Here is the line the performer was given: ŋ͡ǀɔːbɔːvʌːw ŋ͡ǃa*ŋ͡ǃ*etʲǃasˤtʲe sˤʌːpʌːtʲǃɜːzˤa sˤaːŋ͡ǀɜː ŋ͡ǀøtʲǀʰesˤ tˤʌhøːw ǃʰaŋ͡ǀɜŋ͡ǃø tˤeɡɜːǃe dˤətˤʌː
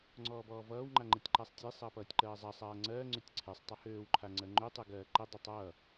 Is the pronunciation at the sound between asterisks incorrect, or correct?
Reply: correct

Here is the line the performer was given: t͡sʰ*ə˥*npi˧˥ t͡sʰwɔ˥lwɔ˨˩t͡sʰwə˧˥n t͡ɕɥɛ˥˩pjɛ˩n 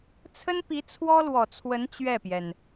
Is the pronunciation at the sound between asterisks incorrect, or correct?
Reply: correct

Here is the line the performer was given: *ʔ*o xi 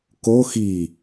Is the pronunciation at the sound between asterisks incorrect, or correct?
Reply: incorrect: k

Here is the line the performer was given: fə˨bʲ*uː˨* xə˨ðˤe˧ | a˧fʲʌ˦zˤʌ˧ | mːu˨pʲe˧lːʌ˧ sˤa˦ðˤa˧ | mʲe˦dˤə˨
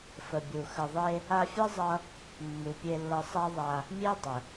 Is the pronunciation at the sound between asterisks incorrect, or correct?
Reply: incorrect: u˨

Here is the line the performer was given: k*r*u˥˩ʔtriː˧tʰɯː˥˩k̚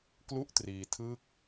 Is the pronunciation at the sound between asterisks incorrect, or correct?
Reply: incorrect: l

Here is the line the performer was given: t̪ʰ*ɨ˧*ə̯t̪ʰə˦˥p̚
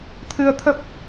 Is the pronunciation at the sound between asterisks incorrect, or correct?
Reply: correct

